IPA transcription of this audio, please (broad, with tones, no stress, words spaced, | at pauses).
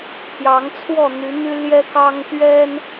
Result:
t̪ʰjɑ˨˦ŋt͡sʰwɔ˥˨ n̪y˨˦n̪y˦ ljɛ˦kɑ˦ŋ t̪ɥɛ˦n